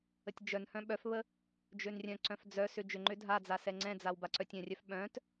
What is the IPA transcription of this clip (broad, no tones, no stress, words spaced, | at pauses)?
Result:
ətʲd͡ʒœnhœ̃ ɓœfβə | d͡ʒønrʲœ̃ǀœ̃f d͡zœsʏ d͡ʒʏŋ͡ǃʏ dʱad͡za sɛŋ͡ǀɛ̃d͡zaw baǀœtʲœ̃rʲœf ɓœ̃t